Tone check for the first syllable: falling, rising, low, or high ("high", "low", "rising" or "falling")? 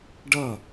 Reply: falling